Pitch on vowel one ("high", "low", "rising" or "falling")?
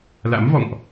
rising